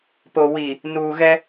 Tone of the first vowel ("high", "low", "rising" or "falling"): low